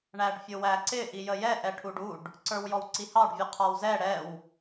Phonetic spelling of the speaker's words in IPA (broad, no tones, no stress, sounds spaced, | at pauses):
ɳ æ ɖ fʲ ʊ w æ ǀ ɪ ʔ i j ə j ɛ ʔ ɛ ʈʰ u ɖ u ɖ | ǀ ə˞ w j ɔ w ǀ i h ɑ ɖ vʲ ʊ qʰ ɔ w z ɛ ɽ ɛ w